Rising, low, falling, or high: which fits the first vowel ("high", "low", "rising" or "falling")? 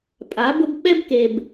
rising